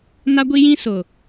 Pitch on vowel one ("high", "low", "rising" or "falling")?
high